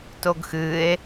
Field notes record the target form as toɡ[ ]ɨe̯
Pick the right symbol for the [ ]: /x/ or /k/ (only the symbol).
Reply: x